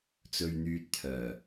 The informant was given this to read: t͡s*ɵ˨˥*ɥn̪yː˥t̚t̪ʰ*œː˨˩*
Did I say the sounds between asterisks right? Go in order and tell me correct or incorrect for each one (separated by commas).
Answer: incorrect, correct